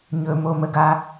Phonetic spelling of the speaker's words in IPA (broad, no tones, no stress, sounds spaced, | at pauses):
ɲ ɵ m o m ə ɡ a